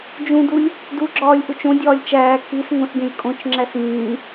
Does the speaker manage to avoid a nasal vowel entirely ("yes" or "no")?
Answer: no